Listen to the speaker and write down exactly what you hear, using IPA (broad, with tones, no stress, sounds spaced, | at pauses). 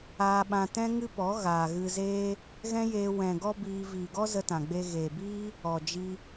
aː˧ ɓ ã˧ t ɛ̃˦ ŋ ɨ˦ p ɔ˨˦ ɣ aː˨ ɣ ɨ˧ z eː˦ | ɣ ɛ̃˦ j eː˧ w ɛ̃˨ ɡ ɔ˧ b iː˧ v iː˨ ɡ ɔ˦ z ə˧ t ã˨ ɡ͡b e˧ ɣ eː˨ b iː˦ | ɔ˨ d͡ʒ i˧